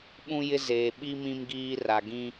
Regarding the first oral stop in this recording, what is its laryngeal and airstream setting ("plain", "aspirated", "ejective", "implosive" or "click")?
implosive